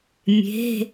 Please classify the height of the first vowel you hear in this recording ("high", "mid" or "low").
mid